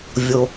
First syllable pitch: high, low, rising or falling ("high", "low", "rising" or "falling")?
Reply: low